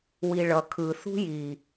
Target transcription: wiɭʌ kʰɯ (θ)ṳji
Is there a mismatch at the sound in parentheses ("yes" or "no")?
no